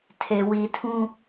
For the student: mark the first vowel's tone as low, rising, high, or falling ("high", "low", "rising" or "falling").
low